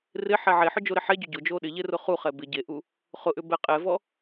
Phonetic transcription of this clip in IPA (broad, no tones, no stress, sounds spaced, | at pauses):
r ɪ ħ ɛ ʕ e ħ ʊ d͡ʒ o ɾ ɪ ħ ɛ ɟ ʏ ɟ ʊ d͡ʒ o ɗ ɪ ʎ e r ʊ χ u χ ɛ b ɪ ɟ e ʔ u | χ ʊ ʔ ʏ b ɛ qʼ ɛ v ɔ